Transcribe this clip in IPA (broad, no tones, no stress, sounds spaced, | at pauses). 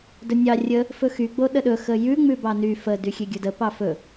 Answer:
d ɵ nʲ ɑ rʲ ə | f ɵ x y ɡ͡b o ɗ ə ɗ ɵ x ə j ʉ ŋ͡m ʉ b ɑ n y f ə d y xʲ e ɡʲ ɵ d ə p ɑ f ɵ